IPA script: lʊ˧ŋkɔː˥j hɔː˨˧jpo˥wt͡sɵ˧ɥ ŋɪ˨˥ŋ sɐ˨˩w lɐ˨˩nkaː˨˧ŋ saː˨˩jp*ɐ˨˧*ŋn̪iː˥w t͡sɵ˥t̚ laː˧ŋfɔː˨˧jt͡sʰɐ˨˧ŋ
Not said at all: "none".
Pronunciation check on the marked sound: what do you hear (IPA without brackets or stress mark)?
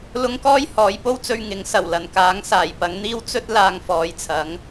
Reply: ɐ˨˧